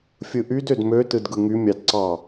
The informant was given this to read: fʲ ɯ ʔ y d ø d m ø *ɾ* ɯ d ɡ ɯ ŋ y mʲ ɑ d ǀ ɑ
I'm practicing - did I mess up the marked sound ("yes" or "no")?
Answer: yes